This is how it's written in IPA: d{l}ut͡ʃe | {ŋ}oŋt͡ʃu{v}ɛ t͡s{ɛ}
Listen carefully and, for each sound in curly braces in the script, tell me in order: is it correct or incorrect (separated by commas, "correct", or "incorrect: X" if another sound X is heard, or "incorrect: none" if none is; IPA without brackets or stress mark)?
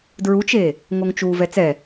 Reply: incorrect: ɹ, correct, correct, correct